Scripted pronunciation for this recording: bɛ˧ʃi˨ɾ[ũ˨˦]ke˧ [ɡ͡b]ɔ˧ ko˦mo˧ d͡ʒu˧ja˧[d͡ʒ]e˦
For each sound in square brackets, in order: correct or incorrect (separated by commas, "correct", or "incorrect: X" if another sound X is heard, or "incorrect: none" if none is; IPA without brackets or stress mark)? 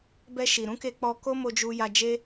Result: correct, incorrect: k͡p, correct